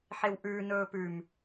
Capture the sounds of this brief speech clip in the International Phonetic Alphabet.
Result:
ħ e w ʔ ʉ n ɵː p ʉ m

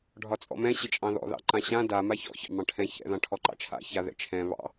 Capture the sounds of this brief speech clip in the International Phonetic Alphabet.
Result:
ɖʱ ɒ t͡sʼ ɔ̰ m ɛ̃ ɕ ɪ t͡ʃʼ ɑ̃ ð ɔ̰ ð ɑ̰ ǃ ã ɕ ã d a m a ç ɔ̰ ç ɑ̰ m ɑ̃ ʈʰ ɛ̃ ç ɛ̰ ð ɑ̃ ʈʰ ɔ ǃ ɑ̰ t͡ʃʰ a̰ ç a ð ɛ̰ t͡ʃʰ ɛ̃ β ɑ̰

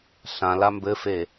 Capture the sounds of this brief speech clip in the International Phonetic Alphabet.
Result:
ɬ ã l a m b ɘ f e

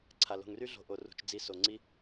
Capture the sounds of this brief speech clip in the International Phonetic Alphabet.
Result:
ǀʰ a˧ l o̤˧ ŋ r y˦ ɮ o̤˧ ʔ o˨ r ṳ˧ t͡ʃ d͡z i˧ s o˧ ŋ͡ǀ i˦

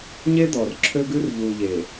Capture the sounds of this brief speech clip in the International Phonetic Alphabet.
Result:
ɲ e˦ d̪ ɔ˨ r ǁʰ ø˦ ɡ ʉ˦ r ʎ u˨ ʎ e˨

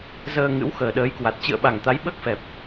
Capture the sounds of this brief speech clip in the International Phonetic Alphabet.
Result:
z əː˧ ŋ ɨ̰˧˥ w x əː˨˩ ɗ əː˨˦ j k w a˨˩ t̚ t͡ɕ ɨ̰˧˨ ə̯ ɓ a˨˩ ŋ t̪ a˨˦ j ɓ əː˦˥ k̚ f ɛ˨˩ p̚

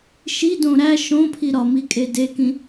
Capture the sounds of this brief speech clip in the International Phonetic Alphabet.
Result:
ʃ i d õ ɾ æ ʃ õ pʰ i ɾ ɒ m i kʼ e d e k ĩ

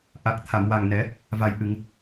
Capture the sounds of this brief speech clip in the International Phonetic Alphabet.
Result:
ʔ a˨˩ k̚ t̪ʰ a˨˩˨ m w a˨˩ ŋ n ɛ˨˩˦ | v a˨˩ j ʔ ɨ˨˩˨ ŋ

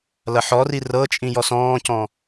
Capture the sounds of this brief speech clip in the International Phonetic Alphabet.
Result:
l ɐ ħ ɔ r i r ɤ t͡ʃʼ ĩ j ɔ s ɔ̃ː c ɔ̃

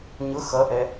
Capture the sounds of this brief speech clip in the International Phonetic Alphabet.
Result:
ɲ ʊ x ʌ ʔ ɛ

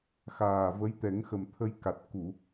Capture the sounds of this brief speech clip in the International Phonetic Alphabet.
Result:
x aː˨˩ v ə˧˥ j t̪ ɛ˨˩˦ ŋ x ə˨˩ m t̪ʰ ə˧ j k a˨˩ t̚ k u˨˩˨

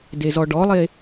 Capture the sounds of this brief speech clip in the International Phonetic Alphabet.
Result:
d e z ɔ ɖ ɔ lˠ e

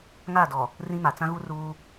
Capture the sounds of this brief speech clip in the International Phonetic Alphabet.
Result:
ŋ aː˦˨ d ɔ˨ | r ĩ˦ m a˨ t͡s ã˦ ɣ u˦ r uː˦

